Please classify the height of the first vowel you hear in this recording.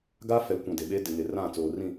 low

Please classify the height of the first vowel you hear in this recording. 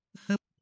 mid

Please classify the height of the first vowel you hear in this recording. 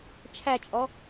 low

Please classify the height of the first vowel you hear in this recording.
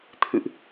high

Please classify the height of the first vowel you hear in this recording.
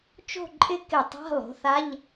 mid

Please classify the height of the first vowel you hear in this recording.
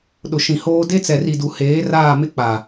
high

